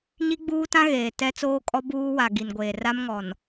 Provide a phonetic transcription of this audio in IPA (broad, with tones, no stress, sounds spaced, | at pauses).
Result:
ɲ i˦ ɡ͡b uː˦ t ã˦ ɣ eː˨ t ɛ˦ t͡s oː˦ kʼ ɔ˦ b uː˦ w a˨ ɡ i˨ n ɡʷ eː˨ r a˦ m ŋ ɔ˨ n